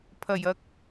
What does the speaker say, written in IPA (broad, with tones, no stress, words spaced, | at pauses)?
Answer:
pʰɐ˨˩jɐ˨k̚